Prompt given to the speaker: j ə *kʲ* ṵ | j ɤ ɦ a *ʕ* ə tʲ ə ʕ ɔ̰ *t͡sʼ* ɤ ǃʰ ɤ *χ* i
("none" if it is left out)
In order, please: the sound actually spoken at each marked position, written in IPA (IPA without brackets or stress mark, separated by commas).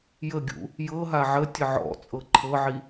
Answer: ɡʲ, ʕ, t͡sʼ, ʕ